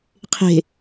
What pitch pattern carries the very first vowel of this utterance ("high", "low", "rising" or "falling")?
low